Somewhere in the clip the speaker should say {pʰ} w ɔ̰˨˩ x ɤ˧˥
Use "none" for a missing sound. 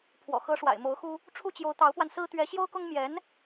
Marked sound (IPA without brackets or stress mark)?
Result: pʰ